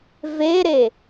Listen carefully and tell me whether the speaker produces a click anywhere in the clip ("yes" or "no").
no